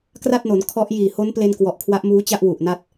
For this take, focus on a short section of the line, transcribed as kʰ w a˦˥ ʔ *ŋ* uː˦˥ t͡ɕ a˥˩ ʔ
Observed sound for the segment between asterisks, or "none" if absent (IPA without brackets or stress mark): m